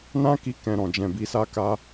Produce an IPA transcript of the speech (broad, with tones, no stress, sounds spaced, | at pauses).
n ã˦ k i˧ k ɛ̃˨ ɾ ɔ̃˨ d͡ʒ ɛ̃˨ b i˧ s a˦ k a˧